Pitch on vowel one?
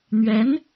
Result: rising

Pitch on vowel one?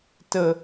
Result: high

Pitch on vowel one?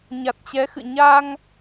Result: low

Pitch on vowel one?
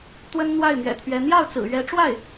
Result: high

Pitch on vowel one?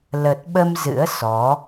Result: low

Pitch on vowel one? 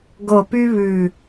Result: low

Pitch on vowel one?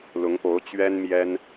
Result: rising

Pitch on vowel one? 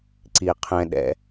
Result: low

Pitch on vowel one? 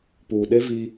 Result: low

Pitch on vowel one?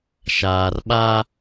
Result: low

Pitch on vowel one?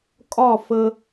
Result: falling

